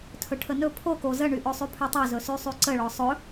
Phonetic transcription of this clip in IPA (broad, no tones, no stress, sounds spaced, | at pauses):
tʰ ɵ ʈʰ ə n ɵ pʰ o k o z ə ɳ y ʔ ɵ sˤ y pʰ ɵ tˤ o z ɵ s y sˤ y ǀ ə ɭ ɔ sˤ ɵ